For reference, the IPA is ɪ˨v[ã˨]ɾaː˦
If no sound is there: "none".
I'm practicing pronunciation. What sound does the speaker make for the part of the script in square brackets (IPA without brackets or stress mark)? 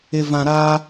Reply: ã˨